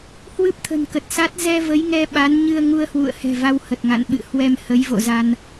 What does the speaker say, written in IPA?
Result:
h w ɨ˦˥ p̚ t̪ʰ ə̤˨˩ n k ə˨˩ t̚ s a˦˥ t̚ z ɛ˧ v ə˨˦ j ŋ ɛ˧ ɓ a˨˦ n ɲ ɨ˧ ə̯ ŋ u˧ ə̯ h w ṵ˧˨ ə̯ h ɛ̤˨˩ v a˧ w h ə˨˩ t̚ ŋ a̰˧˨ n ɓ ɨ̰˧˨ h w ɛ˧ m h ə˨˦ j v o̰˧˨ z a˧ n

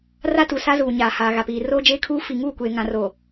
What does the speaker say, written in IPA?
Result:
r a˦ t u˨ s a˦ z uː˨ ɲ aː˨ h aː˨ ɣ a˨ p iː˨ r oː˦ d͡ʒ eː˦ kʰ uː˦ f i˨ ŋ uː˦˨ kʷ eː˨ ŋ ã˨ r oː˨

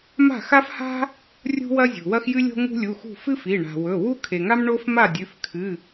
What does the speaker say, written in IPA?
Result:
m a̤˥˨ x a˥ f h a̤˥ | rʲ ṳ˥ w ɐ˥ zʲ ṳ˩ w ɐ˥ x j ɨ˥ lʲ o̤˥ ŋ ṳ˥ lʲ u˩˧˩ x ṳ˥˨ f ɨ˥ f i˩˧˩ ɳ a̤˩ w ɵ˩˧˩ w u˥ kʰ e˩ ŋ a˥ m ɳ o˥ f m a˥˨ dʲ ʉ˩˧˩ f kʰ ɨ˩˧˩

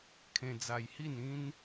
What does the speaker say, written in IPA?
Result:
kʰ ẽ˧ d͡z a˧ j h i˥˧ n ĩ˦ n

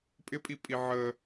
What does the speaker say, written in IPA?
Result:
pʼ ɪ pʼ i pʼ i ʕ ə

